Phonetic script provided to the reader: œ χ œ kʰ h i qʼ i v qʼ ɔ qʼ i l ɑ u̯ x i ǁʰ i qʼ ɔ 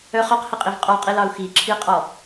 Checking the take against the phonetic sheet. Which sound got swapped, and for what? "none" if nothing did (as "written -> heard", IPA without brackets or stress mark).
kʰ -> q